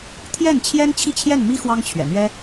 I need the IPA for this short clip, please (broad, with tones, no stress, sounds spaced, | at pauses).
t̪ʰ j ɛ˥˩ n t͡ɕʰ j ɛ˥ n t͡ɕʰ i˥˧ t͡ɕʰ j ɛ˥˩ n m i˥ x w ɑ˥ ŋ t͡ɕʰ ɥ ɛ̰˨˩ n̪ ɥ ɛ˥